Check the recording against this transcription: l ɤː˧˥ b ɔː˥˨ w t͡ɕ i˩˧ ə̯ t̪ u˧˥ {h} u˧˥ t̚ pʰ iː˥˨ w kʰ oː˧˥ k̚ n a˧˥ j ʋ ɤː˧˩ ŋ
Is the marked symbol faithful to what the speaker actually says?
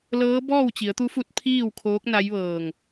no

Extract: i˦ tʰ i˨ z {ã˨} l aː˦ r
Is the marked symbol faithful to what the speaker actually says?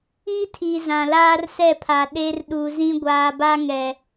yes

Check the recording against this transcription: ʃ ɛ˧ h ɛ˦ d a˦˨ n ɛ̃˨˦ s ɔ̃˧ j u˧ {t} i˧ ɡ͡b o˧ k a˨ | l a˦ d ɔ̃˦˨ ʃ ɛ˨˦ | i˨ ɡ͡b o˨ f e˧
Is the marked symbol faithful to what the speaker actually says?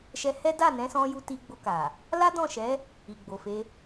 yes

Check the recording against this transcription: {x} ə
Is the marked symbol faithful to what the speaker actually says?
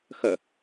yes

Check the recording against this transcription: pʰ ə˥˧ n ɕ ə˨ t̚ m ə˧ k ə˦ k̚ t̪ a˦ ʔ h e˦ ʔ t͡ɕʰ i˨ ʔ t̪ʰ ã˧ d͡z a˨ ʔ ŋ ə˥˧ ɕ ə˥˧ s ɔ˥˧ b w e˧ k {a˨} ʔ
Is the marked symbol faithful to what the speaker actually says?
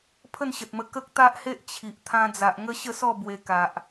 yes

